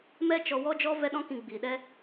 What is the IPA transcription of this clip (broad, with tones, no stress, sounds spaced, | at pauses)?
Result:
m ɛ˦ t͡ʃ ɔ˧ w ɔ˦ d͡ʒ ɔ˦ v ɛ˦ ɗ ɔ̃˦ k ĩ˧ ɡ͡b iː˨ ɗ ɛ˦